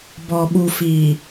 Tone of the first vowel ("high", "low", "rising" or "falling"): low